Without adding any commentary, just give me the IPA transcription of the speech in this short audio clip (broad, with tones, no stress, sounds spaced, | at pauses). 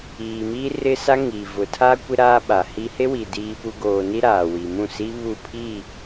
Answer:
iː˨ m i˦ r ɪ˦ s a˦ ŋ i˨ v ʊ˨ tʰ a˦ kʷ ɪ˦ ɾ aː˦ ɓ a˨ h i˦ h e˦ w i˨ d iː˦ p u˦ ɡ oː˦ n i˦ ɾ aː˨ w i˨ m ũ˦˨ s i˦ β u˦˨ pʰ i˦˨